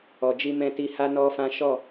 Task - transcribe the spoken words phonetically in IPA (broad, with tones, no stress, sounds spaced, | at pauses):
ɔ˨ d͡ʒ i˧ m ɛ̃˧ t i˧ h a˦ n ɔ˦ f ã˦ ʃ ɔ˦˨